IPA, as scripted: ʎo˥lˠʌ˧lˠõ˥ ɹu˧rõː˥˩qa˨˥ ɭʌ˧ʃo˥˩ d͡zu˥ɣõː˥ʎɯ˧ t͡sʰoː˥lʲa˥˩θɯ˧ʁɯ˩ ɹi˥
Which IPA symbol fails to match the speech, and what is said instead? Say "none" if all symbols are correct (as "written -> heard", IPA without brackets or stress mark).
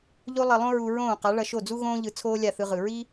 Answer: r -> ɹ